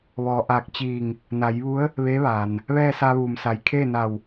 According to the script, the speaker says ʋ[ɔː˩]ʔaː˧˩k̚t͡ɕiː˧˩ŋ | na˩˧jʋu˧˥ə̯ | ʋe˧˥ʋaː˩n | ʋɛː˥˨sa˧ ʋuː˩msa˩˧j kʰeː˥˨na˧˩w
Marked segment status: correct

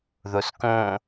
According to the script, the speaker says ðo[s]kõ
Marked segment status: correct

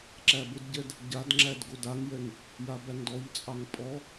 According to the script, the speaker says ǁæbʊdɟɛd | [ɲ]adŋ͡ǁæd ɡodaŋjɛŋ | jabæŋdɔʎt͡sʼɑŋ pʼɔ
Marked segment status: incorrect: ɟ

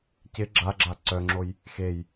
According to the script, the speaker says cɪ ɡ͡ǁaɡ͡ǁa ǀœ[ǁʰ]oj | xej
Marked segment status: incorrect: ŋ͡ǁ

